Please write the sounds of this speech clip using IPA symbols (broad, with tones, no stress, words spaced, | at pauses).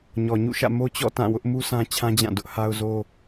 ɲɔ˨ɲṵ˦˨ʃä̰˦˨ mo˦t͡ɕɔ̰˦˨ tã˦˨wʊ˦ʔ mu˦sʰã˦t͡ɕʰã˦d͡ʑã˦˨ dʊ˦ʔha˦ʊ̯zo˦